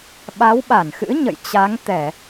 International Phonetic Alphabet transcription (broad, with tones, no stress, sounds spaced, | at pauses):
ɓ a˨˦ w ɓ a˧˩ n x ɨ̰˧˥ ɲ ə̰˧˨ j t͡ɕ a˨˦ ŋ t̪ ɛ˧˩˨